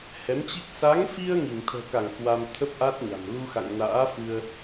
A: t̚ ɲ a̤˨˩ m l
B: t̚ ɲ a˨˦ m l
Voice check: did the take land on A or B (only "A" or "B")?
A